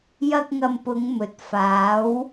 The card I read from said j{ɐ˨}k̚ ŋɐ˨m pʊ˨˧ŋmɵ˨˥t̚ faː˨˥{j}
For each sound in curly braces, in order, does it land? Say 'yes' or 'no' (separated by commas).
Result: no, no